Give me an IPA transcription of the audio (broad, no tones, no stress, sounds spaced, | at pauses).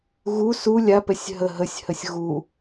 ɣ u s u lʲ a p ɛ sʲ ɦ ə ɦ ə sʲ h ə sʲ ɣ u